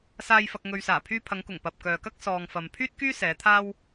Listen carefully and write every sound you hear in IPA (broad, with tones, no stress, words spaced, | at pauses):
saː˧jfɐ˧k̚ ŋɵ˨ɥsaː˨˩ pʰyː˧pʰɐ˨˧ŋkʊ˨˩ŋ pɐ˨p̚kœː˨kɐ˥k̚ sɔː˨ŋfɐ˨m pʰyː˥t̚kyː˥ sɛː˨˧t̪ʰaː˥w